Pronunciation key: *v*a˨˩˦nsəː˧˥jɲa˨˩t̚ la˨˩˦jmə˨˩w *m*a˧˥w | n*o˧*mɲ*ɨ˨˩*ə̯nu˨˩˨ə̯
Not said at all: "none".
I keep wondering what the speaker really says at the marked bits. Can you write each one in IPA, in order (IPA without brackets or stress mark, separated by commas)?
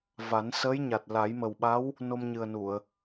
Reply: v, ɓ, o˧, ɨ˨˩